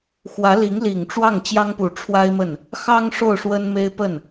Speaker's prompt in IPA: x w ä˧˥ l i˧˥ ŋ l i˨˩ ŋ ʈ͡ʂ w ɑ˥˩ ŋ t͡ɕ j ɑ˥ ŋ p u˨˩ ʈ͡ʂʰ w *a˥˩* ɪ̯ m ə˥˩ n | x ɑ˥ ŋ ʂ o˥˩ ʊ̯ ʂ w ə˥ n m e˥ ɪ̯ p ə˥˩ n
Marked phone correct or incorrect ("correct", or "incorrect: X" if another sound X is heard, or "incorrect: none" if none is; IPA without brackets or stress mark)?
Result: incorrect: a˥